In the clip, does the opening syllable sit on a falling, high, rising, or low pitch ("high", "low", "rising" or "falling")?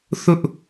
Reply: high